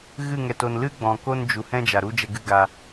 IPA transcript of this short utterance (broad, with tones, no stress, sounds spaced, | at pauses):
ɣ ɨ˦˨ ŋ ɛ˨ t o˨ n l ɨ˦ ɡ͡b ɔ̃˨ k o˦ n d͡ʒ u˨ h ɛ̃˦ d͡ʒ a˨ ɾ u˦ d͡ʒ ɛ˧ ɡ ɨ˦ ɡ a˧